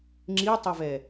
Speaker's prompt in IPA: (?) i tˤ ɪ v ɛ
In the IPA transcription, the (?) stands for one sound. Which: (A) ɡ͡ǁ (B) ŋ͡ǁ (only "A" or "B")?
B